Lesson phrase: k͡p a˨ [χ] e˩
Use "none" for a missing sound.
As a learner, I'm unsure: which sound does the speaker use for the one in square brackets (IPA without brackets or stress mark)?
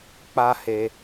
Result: h